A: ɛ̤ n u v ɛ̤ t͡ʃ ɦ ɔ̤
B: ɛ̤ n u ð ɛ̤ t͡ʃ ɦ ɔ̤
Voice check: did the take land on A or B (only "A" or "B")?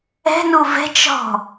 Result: A